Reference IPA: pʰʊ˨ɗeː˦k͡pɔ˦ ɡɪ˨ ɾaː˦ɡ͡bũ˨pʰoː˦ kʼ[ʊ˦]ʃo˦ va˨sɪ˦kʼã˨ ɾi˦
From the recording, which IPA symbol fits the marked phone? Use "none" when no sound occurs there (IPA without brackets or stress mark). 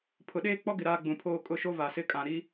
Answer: ʊ˦˨